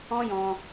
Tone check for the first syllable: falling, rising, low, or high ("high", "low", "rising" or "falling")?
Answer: high